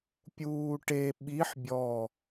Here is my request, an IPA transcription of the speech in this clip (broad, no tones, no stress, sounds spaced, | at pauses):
pʲ uː ʈ e ɓ i ħ bʲ ɔ